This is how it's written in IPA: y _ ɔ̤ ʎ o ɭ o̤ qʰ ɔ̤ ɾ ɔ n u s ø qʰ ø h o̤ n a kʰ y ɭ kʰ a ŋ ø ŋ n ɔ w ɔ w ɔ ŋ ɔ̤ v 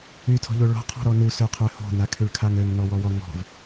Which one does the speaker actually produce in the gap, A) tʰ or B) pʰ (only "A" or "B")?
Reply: A